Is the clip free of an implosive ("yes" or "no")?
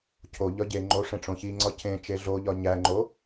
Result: yes